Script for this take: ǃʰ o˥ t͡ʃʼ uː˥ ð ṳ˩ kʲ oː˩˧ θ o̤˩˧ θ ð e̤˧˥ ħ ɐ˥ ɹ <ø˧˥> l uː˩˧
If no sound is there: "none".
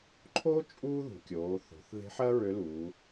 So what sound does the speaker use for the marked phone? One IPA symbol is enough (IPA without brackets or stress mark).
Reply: ø˧˥